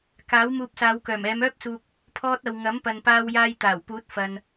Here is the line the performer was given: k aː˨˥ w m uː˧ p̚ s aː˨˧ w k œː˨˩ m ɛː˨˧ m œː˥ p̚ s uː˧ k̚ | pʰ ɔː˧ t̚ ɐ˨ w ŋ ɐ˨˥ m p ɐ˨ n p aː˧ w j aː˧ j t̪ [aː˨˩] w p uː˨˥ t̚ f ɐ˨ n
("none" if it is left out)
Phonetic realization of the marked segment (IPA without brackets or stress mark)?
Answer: aː˨˩